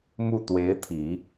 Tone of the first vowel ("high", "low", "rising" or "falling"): falling